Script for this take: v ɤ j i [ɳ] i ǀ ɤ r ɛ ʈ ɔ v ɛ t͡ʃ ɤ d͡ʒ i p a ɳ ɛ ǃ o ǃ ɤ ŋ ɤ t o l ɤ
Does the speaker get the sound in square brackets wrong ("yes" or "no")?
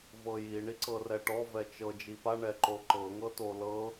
no